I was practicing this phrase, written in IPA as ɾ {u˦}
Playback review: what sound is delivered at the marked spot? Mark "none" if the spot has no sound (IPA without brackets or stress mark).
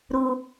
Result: u˦